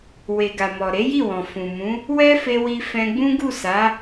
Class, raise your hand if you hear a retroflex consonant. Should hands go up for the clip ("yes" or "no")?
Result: no